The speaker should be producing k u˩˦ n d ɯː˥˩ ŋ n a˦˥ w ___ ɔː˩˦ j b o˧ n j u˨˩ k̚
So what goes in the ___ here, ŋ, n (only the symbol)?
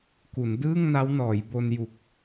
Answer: n